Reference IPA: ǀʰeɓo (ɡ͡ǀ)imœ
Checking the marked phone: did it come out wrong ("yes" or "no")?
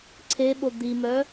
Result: yes